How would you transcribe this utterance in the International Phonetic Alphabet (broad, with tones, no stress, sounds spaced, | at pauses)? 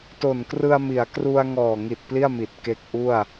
t o˨˩ n k r ɯ˧ a̯ m i˩˦ a̯ k r u˧ a̯ ŋ ɔː˨˩ ŋ i˨˩ t̚ p l i˥˩ a̯ m i˨˩ t̚ k e˦˥ k̚ ʔ u˥˩ a̯